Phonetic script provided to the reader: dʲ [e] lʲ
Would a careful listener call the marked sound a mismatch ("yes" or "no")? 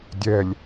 yes